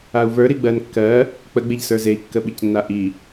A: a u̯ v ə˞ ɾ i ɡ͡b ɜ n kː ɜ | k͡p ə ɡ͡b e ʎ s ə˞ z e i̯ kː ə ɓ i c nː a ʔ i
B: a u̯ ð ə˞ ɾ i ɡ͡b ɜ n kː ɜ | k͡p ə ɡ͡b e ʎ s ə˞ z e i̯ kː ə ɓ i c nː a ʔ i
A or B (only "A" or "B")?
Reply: A